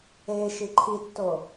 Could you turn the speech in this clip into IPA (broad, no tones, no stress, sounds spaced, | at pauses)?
e ʃ i ǃʰ i tː o